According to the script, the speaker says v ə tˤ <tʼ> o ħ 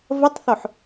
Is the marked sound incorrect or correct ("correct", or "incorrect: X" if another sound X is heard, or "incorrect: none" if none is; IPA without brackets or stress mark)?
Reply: incorrect: θ